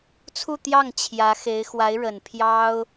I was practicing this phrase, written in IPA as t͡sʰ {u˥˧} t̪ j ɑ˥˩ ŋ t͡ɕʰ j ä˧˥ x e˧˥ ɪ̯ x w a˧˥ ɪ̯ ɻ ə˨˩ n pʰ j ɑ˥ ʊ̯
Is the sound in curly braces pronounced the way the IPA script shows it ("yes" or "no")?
yes